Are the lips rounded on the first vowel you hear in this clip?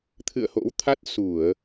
no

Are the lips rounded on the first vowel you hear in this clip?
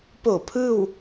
yes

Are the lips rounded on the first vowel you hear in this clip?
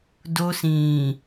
yes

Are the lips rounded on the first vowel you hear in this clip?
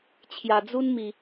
no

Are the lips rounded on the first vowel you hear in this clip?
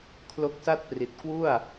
yes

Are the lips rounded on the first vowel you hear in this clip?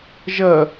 no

